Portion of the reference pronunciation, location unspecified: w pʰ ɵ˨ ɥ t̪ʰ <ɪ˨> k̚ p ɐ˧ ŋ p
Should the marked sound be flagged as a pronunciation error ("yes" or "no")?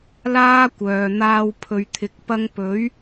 no